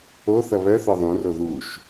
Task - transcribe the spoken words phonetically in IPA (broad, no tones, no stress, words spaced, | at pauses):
oθʌ βœθɔ ðˤũro ðuʃ